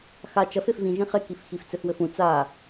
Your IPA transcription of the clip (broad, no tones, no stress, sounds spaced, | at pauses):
x a t͡ʃ ɐ f e f v ĩ ʒ ĩ χ e k i f x i f t͡s ɘ f w ɘ f ũ t͡s a